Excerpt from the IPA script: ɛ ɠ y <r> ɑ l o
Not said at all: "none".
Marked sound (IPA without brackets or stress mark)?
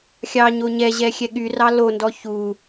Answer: r